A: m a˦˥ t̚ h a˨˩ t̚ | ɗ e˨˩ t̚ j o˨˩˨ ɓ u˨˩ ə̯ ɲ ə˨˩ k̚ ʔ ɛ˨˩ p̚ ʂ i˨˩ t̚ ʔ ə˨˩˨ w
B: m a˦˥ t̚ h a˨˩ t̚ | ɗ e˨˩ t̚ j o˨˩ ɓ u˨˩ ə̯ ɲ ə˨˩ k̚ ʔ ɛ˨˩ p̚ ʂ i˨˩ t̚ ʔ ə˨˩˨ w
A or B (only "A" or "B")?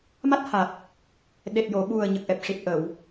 A